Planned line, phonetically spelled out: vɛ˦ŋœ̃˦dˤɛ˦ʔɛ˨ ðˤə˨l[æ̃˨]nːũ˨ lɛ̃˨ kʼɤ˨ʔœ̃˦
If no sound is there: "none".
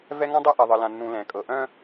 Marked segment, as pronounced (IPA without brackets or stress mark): ã˨